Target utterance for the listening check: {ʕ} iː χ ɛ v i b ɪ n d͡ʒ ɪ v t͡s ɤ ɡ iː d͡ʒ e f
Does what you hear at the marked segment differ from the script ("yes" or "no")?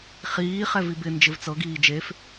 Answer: yes